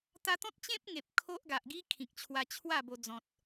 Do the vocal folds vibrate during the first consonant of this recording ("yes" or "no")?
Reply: no